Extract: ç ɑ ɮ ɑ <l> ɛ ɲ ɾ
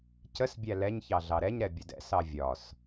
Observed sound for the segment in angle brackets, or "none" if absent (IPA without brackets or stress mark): ɾ